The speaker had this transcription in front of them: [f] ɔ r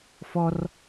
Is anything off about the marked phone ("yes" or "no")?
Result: no